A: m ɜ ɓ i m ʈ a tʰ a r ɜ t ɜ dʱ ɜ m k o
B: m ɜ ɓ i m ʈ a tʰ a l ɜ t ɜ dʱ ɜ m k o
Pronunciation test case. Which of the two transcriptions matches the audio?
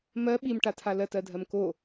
B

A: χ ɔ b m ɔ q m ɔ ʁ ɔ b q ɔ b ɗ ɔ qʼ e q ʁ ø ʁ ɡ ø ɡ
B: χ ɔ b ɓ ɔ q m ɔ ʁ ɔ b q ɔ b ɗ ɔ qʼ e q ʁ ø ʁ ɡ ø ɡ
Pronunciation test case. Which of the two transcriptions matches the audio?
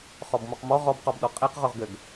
A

